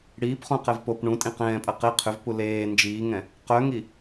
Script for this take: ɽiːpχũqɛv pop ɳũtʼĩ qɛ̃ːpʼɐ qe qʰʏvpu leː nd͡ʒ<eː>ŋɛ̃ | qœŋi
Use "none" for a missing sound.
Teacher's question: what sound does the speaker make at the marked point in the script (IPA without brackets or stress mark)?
iː